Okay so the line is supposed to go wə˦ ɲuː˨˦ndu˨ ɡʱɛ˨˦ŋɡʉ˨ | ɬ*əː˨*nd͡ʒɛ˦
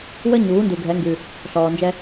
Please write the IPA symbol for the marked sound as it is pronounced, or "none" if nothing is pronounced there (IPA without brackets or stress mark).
ɔː˨